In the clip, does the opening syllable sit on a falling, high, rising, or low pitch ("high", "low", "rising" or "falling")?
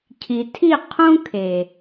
low